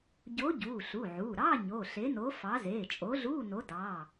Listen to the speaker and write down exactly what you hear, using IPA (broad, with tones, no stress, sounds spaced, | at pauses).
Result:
ɟ o˨˥ ɟ uː˩˧˩ ɬ u˩˧˩ ʕ uː˩˧˩ ɾ ɑ˧˥˧ ɲ oː˩˧˩ ɬ e˨˥ n o˨˥ f ɑ˨˥ z eː˩˧˩ t͡ʃʼ o˨˥ ɮ uː˧˥˧ n o˨˥ d ɑː˩˧˩